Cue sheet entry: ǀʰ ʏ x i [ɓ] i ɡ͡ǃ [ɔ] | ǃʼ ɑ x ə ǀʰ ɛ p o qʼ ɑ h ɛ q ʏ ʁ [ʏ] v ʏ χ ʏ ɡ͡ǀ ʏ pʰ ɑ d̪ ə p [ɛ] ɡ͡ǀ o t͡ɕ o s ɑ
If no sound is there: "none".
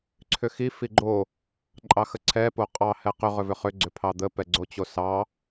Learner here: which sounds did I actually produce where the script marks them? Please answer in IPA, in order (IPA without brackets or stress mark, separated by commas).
f, o, ʏ, ɛ